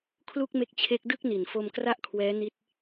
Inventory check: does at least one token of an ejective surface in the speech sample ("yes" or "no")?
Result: no